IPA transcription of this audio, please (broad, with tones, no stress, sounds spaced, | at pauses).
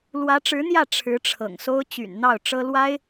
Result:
l w ä˧˥ ʈ͡ʂ ɻ̩˧˥ n̪ j ä˥˩ ʈ͡ʂʰ ɻ̩˧˥ ʈ͡ʂʰ ɤ̰˨˩ ŋ s o˥ ʊ̯ t͡ɕ y̰˨˩ n n̪ ɑ˥˩ ʊ̯ ʈ͡ʂ ɤ˥ l w a˥ ɪ̯